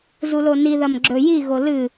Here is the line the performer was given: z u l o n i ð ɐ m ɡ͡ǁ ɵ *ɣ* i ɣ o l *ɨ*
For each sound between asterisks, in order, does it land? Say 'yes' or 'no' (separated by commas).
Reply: no, yes